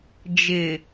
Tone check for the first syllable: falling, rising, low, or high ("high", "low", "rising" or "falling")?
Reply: low